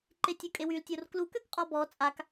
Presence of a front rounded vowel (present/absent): present